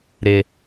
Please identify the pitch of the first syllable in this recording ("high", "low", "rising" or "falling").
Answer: low